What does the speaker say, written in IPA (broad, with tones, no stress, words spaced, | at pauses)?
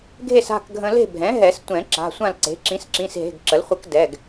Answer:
ɡʱe˥˨sa̤˩˧˩kɡʱə̃˧ le̤˥˨bʱɛ̃˩˥ ɦɛ˨˩˦stʷɛ̃˨˩˦ ǁa̤˩˧˩sʷã˥˨l ǀe̤˩˥ ǁĩ˩˥sǁĩ˩˧˩sɦe̤˩˧˩ɡ ǁə˩˥lχʷə˧˥k dɛ˩˧˩ɡ